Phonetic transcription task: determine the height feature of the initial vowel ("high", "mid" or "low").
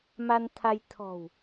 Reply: low